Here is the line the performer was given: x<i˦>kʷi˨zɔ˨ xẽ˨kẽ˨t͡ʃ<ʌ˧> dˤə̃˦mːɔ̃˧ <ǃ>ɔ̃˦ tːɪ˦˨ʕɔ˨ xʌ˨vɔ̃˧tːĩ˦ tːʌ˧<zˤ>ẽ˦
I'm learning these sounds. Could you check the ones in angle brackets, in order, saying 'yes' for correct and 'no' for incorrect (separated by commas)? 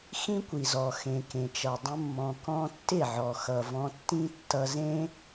no, no, no, no